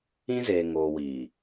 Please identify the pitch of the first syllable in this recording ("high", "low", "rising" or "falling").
high